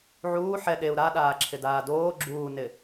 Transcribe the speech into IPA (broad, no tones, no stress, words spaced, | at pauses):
ʕuː ħɛ ɗeu̯ ɾaɗaː ǁʰɪdaːdoː ɡ͡ǁuːnɪ